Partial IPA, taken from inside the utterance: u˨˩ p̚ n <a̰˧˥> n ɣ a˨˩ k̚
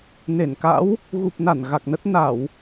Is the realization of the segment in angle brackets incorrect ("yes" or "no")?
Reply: yes